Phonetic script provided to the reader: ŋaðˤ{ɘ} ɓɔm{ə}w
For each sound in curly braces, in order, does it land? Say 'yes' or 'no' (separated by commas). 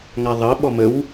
yes, yes